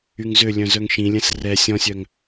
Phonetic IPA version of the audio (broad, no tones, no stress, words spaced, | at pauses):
yŋzø lʲœ̃zœŋʃĩlʲɛ̃s rɛ sʲɔ̃sʲœŋ